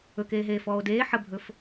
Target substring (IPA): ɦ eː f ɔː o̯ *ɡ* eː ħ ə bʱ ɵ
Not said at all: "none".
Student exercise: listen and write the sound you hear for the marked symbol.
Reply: d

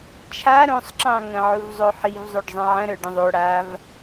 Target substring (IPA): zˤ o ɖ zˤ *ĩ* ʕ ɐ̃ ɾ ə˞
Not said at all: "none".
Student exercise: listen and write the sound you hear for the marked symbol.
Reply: ĩ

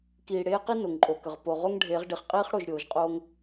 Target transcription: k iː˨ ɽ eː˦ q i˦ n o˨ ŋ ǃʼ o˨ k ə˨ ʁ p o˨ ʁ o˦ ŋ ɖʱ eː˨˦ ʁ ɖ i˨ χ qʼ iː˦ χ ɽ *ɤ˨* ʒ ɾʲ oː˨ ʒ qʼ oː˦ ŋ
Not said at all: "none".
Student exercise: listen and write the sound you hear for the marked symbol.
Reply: o˨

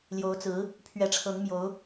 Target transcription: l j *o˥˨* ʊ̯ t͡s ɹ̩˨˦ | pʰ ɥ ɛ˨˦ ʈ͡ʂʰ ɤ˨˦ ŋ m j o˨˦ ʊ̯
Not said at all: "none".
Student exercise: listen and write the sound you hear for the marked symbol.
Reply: o˨˦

